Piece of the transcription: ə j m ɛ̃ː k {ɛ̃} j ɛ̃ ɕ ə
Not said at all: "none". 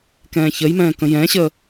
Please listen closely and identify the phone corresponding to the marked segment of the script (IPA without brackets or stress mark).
ə̃